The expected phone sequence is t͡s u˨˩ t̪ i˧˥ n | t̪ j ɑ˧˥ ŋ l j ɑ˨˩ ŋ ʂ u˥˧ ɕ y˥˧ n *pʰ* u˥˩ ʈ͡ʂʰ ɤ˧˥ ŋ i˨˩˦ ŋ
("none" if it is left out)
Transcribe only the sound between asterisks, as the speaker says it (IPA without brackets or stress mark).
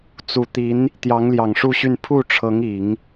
pʰ